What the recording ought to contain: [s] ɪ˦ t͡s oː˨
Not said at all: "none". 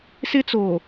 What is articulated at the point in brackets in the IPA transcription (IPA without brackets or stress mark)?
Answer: s